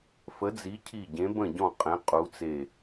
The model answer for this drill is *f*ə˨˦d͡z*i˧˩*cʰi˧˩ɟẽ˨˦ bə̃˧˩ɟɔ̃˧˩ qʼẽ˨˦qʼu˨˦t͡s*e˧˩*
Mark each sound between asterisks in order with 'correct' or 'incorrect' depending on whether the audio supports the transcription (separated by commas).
correct, incorrect, correct